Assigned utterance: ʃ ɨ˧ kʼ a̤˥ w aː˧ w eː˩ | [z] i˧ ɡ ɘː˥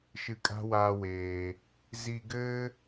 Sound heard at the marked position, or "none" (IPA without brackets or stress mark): z